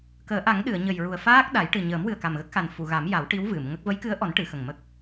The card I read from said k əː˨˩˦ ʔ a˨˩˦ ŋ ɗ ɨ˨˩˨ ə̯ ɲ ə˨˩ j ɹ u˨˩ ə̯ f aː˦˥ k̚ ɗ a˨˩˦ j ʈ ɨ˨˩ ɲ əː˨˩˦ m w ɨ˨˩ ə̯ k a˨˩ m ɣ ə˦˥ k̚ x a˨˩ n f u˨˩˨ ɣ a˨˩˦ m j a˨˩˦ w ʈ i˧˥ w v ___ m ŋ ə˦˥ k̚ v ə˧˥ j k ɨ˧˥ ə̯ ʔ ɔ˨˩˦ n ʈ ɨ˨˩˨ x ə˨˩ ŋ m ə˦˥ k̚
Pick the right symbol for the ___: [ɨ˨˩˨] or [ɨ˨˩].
ɨ˨˩˨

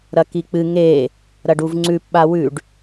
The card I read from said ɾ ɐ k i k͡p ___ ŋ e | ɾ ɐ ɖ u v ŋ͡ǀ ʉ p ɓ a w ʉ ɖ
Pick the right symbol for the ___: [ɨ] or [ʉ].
ɨ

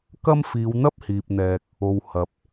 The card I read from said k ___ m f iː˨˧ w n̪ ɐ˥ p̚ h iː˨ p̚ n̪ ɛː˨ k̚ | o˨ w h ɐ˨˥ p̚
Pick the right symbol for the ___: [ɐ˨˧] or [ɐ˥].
ɐ˥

